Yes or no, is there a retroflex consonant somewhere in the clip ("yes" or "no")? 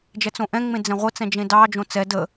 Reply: no